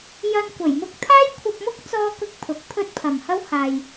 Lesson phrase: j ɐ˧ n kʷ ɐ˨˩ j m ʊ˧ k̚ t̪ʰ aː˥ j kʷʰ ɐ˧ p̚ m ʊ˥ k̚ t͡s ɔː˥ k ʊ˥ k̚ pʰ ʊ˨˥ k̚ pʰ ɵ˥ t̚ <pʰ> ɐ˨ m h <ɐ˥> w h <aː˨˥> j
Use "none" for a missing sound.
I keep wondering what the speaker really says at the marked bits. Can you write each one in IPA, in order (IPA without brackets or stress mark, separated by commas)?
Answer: pʰ, ɐ˥, aː˨